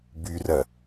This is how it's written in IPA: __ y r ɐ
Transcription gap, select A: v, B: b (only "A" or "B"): B